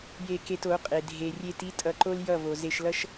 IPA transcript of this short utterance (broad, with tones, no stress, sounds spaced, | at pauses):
j e˧ k e˧ t o˨˦ qʼ e˨ dʱ e˧ rʲ e˦ t i˦ tʼ ʌ˧ ǃ o˦ l j ʌ˦˨ v o˨ z e˧ ʃ l ʌ˦ ʃ